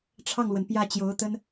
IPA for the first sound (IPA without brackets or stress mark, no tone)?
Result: ʈ͡ʂʰ